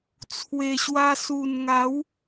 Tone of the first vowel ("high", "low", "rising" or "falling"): low